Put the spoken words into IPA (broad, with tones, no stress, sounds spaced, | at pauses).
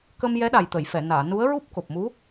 k ə˧ m j ɛ˧˥ ɗ a˨˩ j t̪ ə˨˩˨ j f ɛ˨˩˨ n aː˨˩˨ n u˧˥ ə̯ ɹ u˦˥ p̚ k o˨˩ p̚ m u˧˥